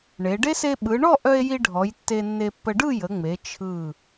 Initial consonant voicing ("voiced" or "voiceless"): voiced